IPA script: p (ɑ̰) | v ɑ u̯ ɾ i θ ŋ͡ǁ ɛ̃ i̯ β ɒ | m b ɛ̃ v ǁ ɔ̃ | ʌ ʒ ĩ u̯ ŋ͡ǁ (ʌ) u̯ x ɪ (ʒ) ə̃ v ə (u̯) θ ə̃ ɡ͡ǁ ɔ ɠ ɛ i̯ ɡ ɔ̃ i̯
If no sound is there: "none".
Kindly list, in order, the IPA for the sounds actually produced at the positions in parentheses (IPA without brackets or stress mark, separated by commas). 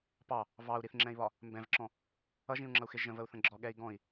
ɑ, ʌ, ʒ, u̯